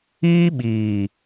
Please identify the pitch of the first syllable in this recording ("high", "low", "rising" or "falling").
high